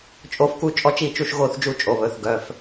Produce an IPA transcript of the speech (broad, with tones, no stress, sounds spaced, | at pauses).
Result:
t͡ʃʼ o˦ f k u˦ t͡ʃʼ ɔ˥˨ t͡ʃ i˥˨ t͡ʃ u˥˨ ʃ ɣ o˦ θ d͡ʒ u˥˨ t͡ʃʼ o˩˧˩ β ɵ˩˧˩ θ ɡ œ˩˧˩ f